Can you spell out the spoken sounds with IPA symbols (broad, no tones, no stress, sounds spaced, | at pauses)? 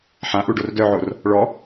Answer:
ħ ã ʔ u ɖ o r d œ ʕ o r | ɭ ɔ